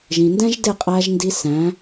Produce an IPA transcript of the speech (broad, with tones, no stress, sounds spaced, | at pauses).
ʒ ĩ˨ n d ɛ̃˦ ʒ d ɪ˦˨ qʼ æ˧ ʒ n d i˧ s æ̃˨˦